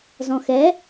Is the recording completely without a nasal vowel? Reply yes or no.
no